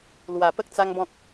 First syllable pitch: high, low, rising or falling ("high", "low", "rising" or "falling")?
low